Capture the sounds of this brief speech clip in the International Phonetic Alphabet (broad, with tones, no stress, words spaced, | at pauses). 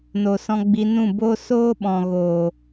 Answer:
no˨sɔ̃˧ɡ͡bi˧ nũ˦˨boː˦ soː˦ ɓɔ̃˨ɣoː˨